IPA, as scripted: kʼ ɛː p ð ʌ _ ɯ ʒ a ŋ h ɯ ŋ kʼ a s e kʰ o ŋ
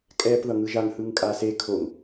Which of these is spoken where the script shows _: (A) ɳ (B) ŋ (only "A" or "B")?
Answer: B